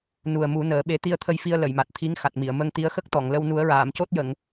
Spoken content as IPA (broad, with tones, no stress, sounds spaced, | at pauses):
n u˨˩ ə̯ m u˨˩˦ n əː˨˩˦ ɓ e˧˥ t̪ i˧ ə̯ t̪ʰ ə˧ j f i˧ ə̯ l ə˨˩˨ j m a˨˩ t̚ t̪ʰ i˧˥ ŋ x a˨˩ t̚ m i˨˩˨ ə̯ m ə˧ ŋ t̪ i˧˥ ə̯ x ə˦˥ k̚ t̪ ɔ˨˩˨ ŋ l ə˧ w n u˨˩˦ ə̯ ɹ aː˨˩˨ m c o˦˥ t̚ j ə˨˩˨ ŋ